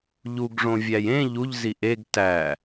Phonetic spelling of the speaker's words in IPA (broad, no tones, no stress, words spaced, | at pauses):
ʎuɡʐõvʲæj ẽ ʎuʎzi ʔeɡ tæ